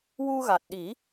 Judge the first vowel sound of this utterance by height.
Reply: high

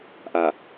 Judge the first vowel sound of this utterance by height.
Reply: low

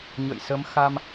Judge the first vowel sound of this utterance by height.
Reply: mid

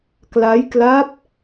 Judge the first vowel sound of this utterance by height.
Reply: low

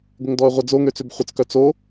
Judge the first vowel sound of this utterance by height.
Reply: mid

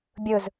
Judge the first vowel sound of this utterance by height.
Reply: high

